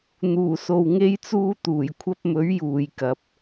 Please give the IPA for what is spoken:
n̪ uː˨˩ s o˨ w ŋ e˧ j t͡s uː˧ t̪ uː˨˩ j kʷʰ ɐ˧ p̚ m ɵ˨˥ ɥ j uː˨ j k ɐ˨˥ p̚

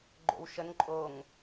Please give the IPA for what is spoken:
ɡ͡ǃ o̰ w ʃ ə n ǃʼ o ŋ

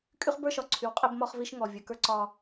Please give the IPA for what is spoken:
kʼ y˦ χ b ə˞˦ ʃ ɒ˨ ǀʰ y˨ w qʼ e˦ b m ɒ˦ χ v i˦ ʃ ŋ ɔ˨ vʲ ə˞˨ k ə˞˦ ǀ ɒ˦

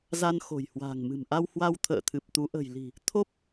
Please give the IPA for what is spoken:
z a˧ n x o̤˨˩ j h w a̤ː˨˩ ŋ m ɨ̤˨˩ m ʔ a˧ w h w a˧ w t̪ʰ ə̰ː˧˨ t̪ʰ ɨ˨˩ p̚ t̪ u˨˦ ʔ ə̤˨˩ j l i̤˨˩ | t̪ʰ o˦˥ p̚

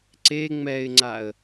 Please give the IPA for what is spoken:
ǀ e ŋ͡m ɛ ɪ̯ ŋ͡ǀ a ə̯

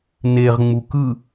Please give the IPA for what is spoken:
n e ʁ ŋ͡m u k ɯ

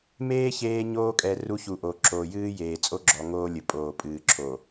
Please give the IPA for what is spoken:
m eː˦ ç eː˦ ɲ oː˦ kʼ ɛ˨ r u˦ ç u˨ ʔ o˨ ǁ oː˨ j ɨː˦ j eː˨ t͡sʼ o˦ ɡ͡ǁ ɔ˨ ŋ oː˦ lʲ ɘ˨ pʼ oː˨ pʼ ɨː˨ ǁʰ o˨

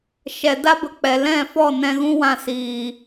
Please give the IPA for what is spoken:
ʃ ɛ˨ d a˦ b ə˧ k͡p ɛ˨ l ɛ̃˦˨ f ɔ˦˨ n ɛ̃˧ ɣ ũ˦ w ã˧ s iː˨

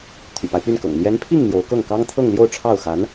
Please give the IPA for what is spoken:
t̪ʰ y̰˨˩ p a˦ ɪ̯ p y˥˩ n k ɤ̰˨˩ ŋ n̪ j ɛ˧˥ n pʰ i˥˩ ŋ n̪ j o˧˥ ʊ̯ k ɤ˥˩ ŋ k ɑ˥ ŋ t̪ʰ ɤ˥˧ ŋ l j o˥˧ ʊ̯ ʈ͡ʂʰ ɑ˥˩ ʊ̯ x a˧˥ n

